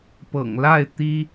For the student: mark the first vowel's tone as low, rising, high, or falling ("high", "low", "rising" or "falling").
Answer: low